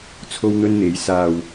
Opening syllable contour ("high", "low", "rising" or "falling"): high